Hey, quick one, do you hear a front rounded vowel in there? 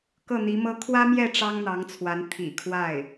no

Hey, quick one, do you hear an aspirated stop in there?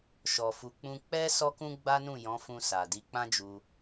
no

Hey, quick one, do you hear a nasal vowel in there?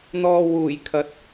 no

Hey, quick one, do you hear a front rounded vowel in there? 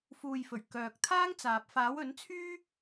yes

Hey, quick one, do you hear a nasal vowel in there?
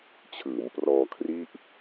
no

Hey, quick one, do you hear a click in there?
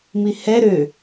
no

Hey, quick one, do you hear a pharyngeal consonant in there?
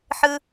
yes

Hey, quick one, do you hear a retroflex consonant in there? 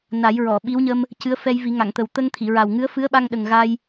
no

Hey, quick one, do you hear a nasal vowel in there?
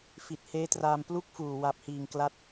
no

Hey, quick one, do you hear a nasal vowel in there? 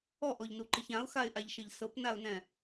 yes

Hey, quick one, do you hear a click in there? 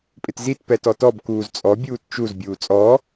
no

